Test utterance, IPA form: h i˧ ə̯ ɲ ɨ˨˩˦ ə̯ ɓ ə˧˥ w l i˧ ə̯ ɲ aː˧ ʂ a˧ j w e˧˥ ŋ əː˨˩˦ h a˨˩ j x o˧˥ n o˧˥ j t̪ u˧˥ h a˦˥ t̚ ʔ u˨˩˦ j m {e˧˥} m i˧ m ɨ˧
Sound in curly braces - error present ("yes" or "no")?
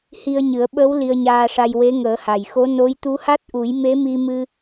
no